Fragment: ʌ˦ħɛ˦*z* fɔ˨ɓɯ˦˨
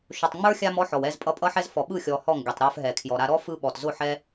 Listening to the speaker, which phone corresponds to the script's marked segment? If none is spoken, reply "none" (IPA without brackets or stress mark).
z